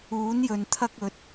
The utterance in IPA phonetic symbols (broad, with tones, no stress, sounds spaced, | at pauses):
uː˨˥ n j ɵ˨ n t̪ʰ ɐ˥ k̚ ɵ˨˥ t̚